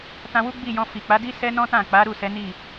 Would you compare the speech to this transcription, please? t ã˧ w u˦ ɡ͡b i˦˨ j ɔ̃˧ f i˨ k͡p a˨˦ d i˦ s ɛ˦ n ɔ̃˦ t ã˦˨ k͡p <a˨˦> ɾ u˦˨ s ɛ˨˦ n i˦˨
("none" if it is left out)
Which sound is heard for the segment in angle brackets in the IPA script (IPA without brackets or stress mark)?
a˨˦